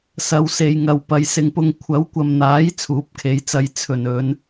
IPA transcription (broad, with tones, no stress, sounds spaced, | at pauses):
s ɐ˨˧ w s e˨ j ŋ ɐ˨ w p ɐ˨ j s ɪ˨ ŋ p ʊ˧ ŋ kʷʰ ɐ˨˥ w kʷ ɐ˨ m n̪ aː˨˥ j t͡sʰ uː˨˥ p̚ kʰ e˨˥ j t͡s ɐ˧ j t͡sʰ ɵ˨˩ n ɵ˨˧ n